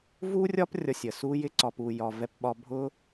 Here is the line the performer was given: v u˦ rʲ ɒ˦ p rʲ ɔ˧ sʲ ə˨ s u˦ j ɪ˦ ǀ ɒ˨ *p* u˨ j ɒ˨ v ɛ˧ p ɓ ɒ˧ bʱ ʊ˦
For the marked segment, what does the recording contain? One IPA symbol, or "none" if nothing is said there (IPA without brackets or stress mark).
p